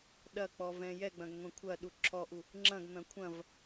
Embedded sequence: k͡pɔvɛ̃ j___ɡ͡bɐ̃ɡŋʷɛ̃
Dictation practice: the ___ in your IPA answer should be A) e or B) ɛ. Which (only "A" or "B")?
B